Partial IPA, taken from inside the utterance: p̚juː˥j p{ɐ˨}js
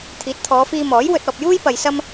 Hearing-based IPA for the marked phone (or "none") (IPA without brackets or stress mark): ɐ˨